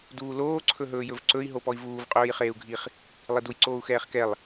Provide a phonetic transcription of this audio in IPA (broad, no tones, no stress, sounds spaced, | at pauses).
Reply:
d uː l oː ǀʰ ɵ ɦ ɵː j ɵ v ǀ ɵ i̯ ɦ o p ɔ i̯ v uː v qʼ ɵː j χ eː u̯ ɡʱ i χ | lˠ i d u j ǀ oː u̯ x ɛː χ k ɛ lˠ